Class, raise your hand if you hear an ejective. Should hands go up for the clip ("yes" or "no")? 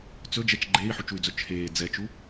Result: no